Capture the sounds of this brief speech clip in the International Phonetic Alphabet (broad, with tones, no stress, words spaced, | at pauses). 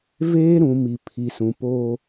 veː˦ɾũ˨ mi˨pʰi˨sũ˨ poː˦